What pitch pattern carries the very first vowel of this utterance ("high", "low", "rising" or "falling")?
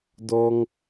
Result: high